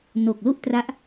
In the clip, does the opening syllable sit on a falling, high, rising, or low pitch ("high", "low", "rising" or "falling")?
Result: low